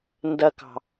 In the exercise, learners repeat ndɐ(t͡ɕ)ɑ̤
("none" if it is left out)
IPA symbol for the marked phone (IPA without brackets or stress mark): k